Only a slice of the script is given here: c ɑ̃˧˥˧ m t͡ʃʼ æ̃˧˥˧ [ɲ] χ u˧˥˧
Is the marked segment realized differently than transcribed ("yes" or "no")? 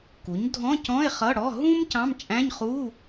no